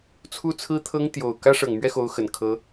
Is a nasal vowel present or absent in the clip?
absent